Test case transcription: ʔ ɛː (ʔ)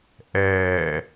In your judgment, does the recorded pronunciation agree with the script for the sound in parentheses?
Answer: no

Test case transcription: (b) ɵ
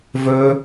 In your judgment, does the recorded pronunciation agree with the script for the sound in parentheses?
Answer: no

